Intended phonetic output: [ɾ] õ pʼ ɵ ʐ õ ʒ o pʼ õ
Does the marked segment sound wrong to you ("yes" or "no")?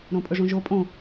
no